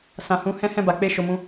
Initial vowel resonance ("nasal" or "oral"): nasal